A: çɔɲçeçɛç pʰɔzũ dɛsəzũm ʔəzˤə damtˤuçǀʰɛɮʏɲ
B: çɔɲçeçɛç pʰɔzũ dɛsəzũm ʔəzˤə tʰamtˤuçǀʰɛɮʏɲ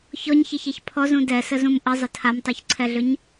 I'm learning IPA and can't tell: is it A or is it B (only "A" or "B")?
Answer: B